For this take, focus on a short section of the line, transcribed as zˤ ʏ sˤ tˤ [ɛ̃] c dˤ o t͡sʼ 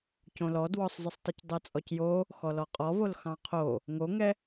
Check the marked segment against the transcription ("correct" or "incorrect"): incorrect